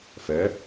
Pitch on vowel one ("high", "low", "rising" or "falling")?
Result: rising